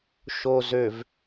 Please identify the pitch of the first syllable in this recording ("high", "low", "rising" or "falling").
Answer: low